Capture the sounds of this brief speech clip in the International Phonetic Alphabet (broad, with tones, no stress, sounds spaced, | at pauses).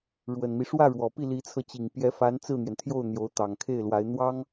ɻ w ə˨˩ n m i˦ ʂ w ä˥˩ ɻ w ɔ˨˩ p i˥˩ l i˧˥ t͡sʰ ɤ˧ t͡ɕ i˨˩ ŋ p j ɛ˧˥ f a˧˥ n t͡s ɹ̩˥˩ n̪ j ɛ˩ n t̪ʰ j o˥˩ ʊ̯ n̪ j o˧˥ ʊ̯ t̪ ɑ˨˩ ŋ kʰ e˥˩ ɪ̯ l w a˧˥ ɪ̯ n̪ w ɑ˥ ŋ